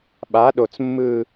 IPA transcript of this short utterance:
ɓ a˧˥ ɗ o˧ t͡s mː ɯ˧

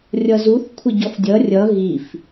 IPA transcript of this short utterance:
rʲ ʌ z u θ kʷʰ ɪ ɟ ɔ f dʲ ʌ rʲ ʌ ɣ i f

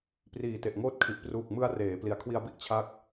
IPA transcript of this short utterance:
p r iː˨˩ t e˨˩ ʔ ŋ oː˦˥ t̚ kʰ i˨˩ ʔ p r uː˨˩ k̚ m ɯ˧ a̯ r eː˩˦ p l i˨˩ a̯ kʰ w i˧ a̯ b i˥˩ ʔ t͡ɕʰ a˥˩ k̚

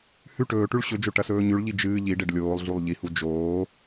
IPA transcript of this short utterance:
h ʉ ʈ ɵː ʈ ʉ ɭ ɕ ɵ d͡ʒ o ʈ ɐ s ɵː ɲ ʉ ɭ ʎ i d͡ʒ ɨː ʎ i ɖ e ɖ lʲ oː lˠ ɮ u lˠ ʎ i h u d͡ʒ oː

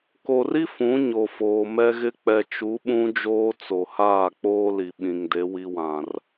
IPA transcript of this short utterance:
k o˨ r i˦ f ũ˨˦ ɲ o˨ f oː˨ m ɛ˦ ɣ ɪ˦ k͡p ɛ˨ t͡ʃ u˨˦ ɓ ũ˦ d͡ʒ oː˦ t͡s o˨ h aː˦˨ k͡p oː˦ l i˨ ɓ ĩ˨ ŋ d e˨˦ w i˦ w ã˨ r

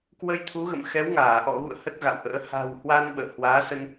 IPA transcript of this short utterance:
k w ə˧ j t̪ʰ u˨˦ ɣ ə̰˧˨ m x ɛ˨˦ w ŋ aː˧˩ ʔ ɔ̰˧˨ ɣ ṵ˧˨ ə̯ h ə˦˥ t̚ ɣ a̰˧˨ w ʔ ə̰ː˧˥ h a̤˨˩ w h w a˧ n ɓ ə̰ː˧˨ h w aː˨˦ s ə˧ n

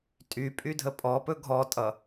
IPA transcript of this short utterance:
tʼ y pʼ y dʱ ə pʼ ɔ p ɵ ɡʱ ɔ tʼ ʌ

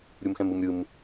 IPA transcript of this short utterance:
ɾʲ u m x ɛ̃ m ɯ m ɾʲ ɯ m

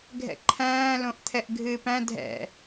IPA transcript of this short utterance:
ɡʱ ɛ̰ ǃʰ æ̃ː l õ ʔ t̪ʰ ɛ ʔ ɡʱ ɨː p æ̃ dʱ ɛ̰

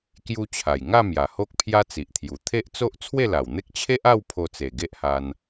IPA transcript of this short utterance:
k j u˧ t͡ɕʰ a˨˩ j ŋ a˥˧ m j a˨˩ h o˦ k̚ pʰ j a˦ t͡s i˨ ʔ t̪ʰ j u˨˩ t̪ʰ e˦ ʔ t͡s o˦ ʔ t͡sʰ w e˥˧ l a˨˩ w n̪ e˦ k̚ t͡ɕʰ e˦ ʔ a˥˧ w pʰ o˧ t͡s e˨˩ ɡ e˦ ʔ h a˧ n

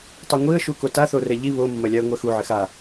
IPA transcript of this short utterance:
tˤ o ŋʷ i ə̯ ʃ u k o t a θ o r ɛ ʎ i β o mː ɐ lʲ a ə̯ ŋʷ ɛ x u ʕ ɘ x a

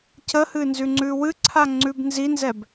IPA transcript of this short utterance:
c ə h ɨ n z ʉ ŋ͡ǀ ʉ w ɨ ǀʰ a ŋ͡ǀ ʉ b n z i n z ɛ b

